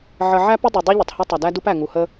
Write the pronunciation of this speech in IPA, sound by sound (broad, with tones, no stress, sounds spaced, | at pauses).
ʕ ə˨ ʕ æ˦ p ə˦ dˤ ʊ˨ dˤ u˦ ʎ ʊ˨ tˤ h ɐ˦ tˤ ɐ˨ d æ˦ d u˦ p æ˨ ŋ u˨ h ə˦